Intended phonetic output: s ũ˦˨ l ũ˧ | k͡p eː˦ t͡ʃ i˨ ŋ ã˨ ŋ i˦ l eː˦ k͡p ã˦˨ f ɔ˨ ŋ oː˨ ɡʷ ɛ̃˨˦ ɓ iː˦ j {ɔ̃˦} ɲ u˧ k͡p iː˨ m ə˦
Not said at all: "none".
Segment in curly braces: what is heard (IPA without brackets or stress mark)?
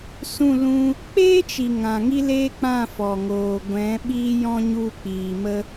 ɔ̃˦